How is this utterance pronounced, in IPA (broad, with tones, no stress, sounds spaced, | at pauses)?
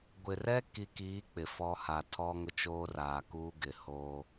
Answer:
ɡʷ ɪ˨ r ɛ˦ k i˨ k iː˨˦ k͡p ɪ˨ f ɔ˦ h a˨ tʰ ɔ˦ ŋ ʊ˦ t͡ʃ oː˦ r aː˨ k uː˦ ɡ ɪ˨ h oː˦